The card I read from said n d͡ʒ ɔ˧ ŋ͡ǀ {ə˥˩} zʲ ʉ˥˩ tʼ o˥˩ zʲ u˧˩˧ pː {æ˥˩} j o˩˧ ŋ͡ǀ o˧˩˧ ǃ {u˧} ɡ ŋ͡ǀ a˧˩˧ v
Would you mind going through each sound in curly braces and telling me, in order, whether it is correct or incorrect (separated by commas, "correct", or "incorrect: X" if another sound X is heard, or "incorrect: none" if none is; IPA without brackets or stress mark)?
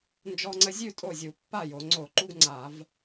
incorrect: ə˧, incorrect: a˥˩, correct